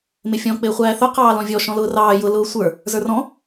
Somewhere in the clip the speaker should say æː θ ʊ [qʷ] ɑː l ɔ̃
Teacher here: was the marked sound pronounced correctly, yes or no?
no